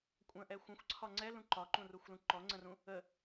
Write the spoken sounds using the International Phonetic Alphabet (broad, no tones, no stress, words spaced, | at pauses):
kʷʼə̃ʔɛ xʷə̃xʷǀʰɒ ŋ͡ǀɛlũ ǃɒǃũruxʷlũ ǃɔŋ͡ǀə̃rũ | ə